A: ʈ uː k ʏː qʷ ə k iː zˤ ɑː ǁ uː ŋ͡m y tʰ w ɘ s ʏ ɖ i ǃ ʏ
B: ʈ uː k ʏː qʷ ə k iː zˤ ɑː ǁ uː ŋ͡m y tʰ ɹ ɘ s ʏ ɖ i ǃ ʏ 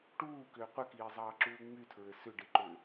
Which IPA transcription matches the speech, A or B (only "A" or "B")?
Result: B